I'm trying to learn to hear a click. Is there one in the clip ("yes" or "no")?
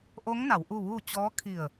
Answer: no